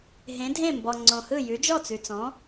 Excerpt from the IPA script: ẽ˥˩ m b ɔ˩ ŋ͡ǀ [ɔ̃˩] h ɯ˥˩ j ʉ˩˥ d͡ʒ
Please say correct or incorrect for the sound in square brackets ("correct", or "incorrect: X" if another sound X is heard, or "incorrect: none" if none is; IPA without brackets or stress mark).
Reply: incorrect: õ˩